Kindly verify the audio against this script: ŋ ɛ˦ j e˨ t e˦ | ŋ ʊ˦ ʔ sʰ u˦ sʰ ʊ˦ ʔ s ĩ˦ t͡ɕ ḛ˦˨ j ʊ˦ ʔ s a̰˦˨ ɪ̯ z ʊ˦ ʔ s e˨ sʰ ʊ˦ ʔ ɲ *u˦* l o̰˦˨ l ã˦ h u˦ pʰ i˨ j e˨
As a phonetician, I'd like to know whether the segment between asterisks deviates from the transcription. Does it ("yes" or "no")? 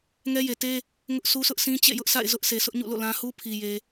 yes